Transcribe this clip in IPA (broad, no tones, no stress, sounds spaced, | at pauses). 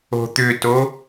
o̤ t̪ ʏ t o